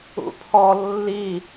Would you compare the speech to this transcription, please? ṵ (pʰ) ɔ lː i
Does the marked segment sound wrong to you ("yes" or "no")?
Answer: no